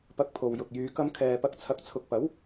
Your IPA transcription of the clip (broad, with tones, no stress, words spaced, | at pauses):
pɐ˧k̚pʰo˨wjʊ˨k̚ jyː˨˧kɐ˧m kʰɛː˨pɐ˧k̚t͡sʰɐ˨˥k̚ t͡sʰʊ˨k̚pɐ˨˥w